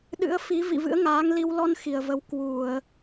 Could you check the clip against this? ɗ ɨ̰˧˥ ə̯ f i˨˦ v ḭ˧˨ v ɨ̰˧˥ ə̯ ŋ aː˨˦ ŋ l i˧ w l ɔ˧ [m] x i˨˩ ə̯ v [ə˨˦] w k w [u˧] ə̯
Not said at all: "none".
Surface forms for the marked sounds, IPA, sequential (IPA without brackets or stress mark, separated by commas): n, ə˨˦, u˧˩˨